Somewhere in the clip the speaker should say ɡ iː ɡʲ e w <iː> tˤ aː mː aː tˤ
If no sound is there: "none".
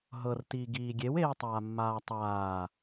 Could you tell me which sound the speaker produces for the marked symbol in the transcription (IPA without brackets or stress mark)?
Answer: eː